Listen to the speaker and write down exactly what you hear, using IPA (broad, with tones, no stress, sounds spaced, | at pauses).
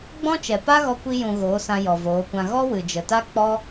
ɡ͡b ɔ̃˦ t͡ʃ ɛ˨ p a˦ ɣ ɔ˧ kʷ i˦ j ũ˧ ɣ oː˨˦ s ã˧ j ɔ˨ v oː˨˦ kʷ ã˧ ɣ ɔ˦ w ɨ˨ d͡ʒ ə˨ t a˦ k͡p ɔ˦